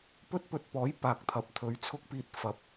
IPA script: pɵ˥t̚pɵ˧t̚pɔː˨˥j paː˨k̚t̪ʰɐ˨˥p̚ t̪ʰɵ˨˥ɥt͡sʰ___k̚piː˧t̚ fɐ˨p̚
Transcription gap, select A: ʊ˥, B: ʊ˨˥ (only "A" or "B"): A